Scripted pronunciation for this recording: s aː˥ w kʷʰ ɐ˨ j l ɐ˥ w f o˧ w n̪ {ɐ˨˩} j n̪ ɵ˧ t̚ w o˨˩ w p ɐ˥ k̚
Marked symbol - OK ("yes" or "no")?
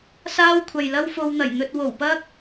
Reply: yes